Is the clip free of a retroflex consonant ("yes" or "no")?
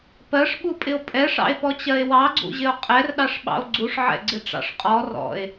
no